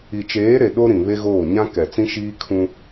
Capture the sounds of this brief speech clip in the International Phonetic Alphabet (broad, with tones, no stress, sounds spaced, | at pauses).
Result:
i˨ t͡ʃ eː˨˦ ɾ e˨ ɗ o˦ ɾ ĩ˨ β e˦ ɣ oː˦˨ ɲ ã˦ k ɛ˨ t͡s ĩ˦ ʃ iː˦ kʰ ũ˦